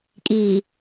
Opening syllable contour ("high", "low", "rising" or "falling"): low